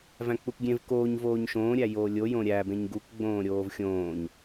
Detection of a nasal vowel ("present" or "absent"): present